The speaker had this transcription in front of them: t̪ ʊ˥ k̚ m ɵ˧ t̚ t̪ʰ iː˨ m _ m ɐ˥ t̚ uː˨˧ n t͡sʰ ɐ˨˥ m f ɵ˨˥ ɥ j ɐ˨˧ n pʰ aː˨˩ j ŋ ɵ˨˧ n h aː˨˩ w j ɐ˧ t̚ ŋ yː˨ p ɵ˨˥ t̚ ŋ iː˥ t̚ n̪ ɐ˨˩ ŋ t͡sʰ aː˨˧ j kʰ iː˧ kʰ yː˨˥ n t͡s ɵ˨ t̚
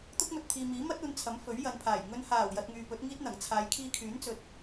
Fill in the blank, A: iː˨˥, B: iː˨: A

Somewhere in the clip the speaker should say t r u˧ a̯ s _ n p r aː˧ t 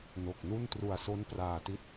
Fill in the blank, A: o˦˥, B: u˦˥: A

